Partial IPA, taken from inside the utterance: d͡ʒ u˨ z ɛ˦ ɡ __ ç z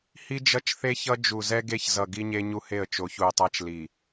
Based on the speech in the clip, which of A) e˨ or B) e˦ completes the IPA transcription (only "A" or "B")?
B